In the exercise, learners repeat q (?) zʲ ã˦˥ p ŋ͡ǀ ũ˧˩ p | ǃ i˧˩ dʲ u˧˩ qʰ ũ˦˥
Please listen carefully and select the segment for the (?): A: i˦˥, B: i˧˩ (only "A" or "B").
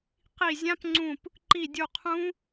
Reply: B